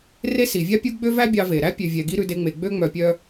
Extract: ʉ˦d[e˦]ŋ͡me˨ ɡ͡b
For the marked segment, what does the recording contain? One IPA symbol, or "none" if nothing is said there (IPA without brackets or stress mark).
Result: e˦